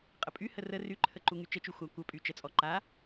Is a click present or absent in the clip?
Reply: present